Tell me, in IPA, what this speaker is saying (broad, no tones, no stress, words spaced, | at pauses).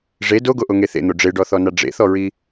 ʐe doɡoʔoŋe θḛn̪o ɖ͡ʐeɖɔθɔna ɖ͡ʐḛθɔɹi